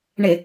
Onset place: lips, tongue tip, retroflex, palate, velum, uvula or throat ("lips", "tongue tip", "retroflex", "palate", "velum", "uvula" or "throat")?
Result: retroflex